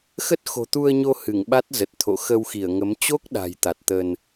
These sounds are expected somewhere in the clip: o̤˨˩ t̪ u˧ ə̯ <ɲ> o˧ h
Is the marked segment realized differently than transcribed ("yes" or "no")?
no